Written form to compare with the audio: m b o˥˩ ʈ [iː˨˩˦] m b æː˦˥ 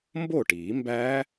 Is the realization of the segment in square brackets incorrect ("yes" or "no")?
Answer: no